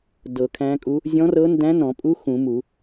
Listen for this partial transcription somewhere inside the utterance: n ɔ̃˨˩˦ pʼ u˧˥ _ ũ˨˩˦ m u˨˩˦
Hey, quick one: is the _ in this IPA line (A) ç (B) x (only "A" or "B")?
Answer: B